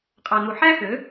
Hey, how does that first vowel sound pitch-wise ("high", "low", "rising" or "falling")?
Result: low